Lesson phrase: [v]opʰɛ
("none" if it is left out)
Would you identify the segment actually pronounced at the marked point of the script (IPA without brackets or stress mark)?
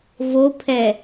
v